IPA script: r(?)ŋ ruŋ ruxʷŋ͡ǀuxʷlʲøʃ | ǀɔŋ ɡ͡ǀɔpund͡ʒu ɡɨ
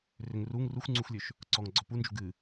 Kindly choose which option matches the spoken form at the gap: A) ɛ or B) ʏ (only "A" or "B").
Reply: B